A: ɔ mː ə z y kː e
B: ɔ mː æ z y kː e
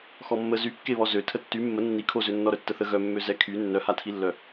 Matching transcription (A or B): A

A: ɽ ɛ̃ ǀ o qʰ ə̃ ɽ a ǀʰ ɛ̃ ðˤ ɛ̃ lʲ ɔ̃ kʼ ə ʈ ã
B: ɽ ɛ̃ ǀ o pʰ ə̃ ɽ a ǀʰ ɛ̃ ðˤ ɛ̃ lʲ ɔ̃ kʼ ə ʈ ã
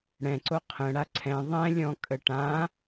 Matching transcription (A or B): A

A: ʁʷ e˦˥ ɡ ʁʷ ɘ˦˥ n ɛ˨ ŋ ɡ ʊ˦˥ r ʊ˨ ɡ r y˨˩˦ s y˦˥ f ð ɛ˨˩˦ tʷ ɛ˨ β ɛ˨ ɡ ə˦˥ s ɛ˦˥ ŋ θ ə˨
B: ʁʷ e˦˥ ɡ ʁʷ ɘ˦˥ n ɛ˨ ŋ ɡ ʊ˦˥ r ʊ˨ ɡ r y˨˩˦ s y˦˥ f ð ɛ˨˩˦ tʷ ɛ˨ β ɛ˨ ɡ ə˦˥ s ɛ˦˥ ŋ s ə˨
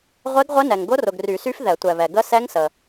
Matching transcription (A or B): B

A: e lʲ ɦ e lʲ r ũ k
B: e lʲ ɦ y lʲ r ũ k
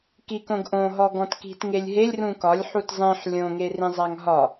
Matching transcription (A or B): A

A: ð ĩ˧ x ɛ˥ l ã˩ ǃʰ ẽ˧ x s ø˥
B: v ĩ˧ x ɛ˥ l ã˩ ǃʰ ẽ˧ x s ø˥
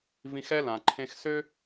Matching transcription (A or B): B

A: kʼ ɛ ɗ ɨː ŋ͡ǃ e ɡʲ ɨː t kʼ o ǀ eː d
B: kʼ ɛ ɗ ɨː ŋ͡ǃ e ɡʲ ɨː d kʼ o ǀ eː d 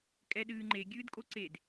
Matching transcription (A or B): B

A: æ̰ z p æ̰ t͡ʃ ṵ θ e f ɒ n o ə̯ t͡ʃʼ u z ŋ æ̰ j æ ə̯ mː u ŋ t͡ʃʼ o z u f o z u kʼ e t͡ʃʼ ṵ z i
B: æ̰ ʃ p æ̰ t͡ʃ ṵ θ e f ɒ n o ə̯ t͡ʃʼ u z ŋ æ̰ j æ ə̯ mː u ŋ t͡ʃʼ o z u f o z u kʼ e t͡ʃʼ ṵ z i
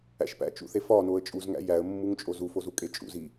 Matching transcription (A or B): B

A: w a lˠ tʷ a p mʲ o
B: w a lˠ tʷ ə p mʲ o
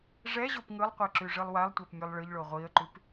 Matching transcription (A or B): A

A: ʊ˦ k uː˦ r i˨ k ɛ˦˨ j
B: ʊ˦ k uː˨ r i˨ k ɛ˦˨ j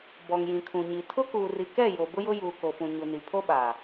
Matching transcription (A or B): B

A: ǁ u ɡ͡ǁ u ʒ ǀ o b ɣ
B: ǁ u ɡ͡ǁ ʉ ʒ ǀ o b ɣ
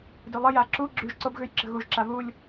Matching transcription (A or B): B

